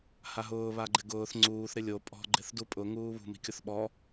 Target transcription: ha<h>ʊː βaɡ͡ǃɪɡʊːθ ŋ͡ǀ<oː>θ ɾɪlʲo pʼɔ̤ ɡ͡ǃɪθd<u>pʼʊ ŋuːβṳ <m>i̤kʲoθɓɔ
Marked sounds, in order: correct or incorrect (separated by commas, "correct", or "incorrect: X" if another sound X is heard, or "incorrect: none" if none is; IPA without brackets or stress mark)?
incorrect: ɦ, incorrect: uː, correct, correct